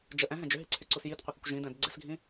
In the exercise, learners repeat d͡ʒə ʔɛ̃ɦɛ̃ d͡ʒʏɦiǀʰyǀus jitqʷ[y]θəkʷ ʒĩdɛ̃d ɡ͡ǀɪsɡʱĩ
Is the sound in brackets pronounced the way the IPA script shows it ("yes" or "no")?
no